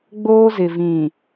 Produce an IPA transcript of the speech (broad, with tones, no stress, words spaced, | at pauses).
ɡ͡boː˦zɪ˨ vĩ˨